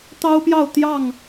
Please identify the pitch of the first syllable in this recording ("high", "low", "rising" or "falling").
high